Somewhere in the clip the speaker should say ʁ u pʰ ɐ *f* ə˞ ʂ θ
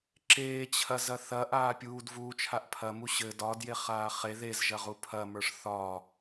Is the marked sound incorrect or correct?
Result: incorrect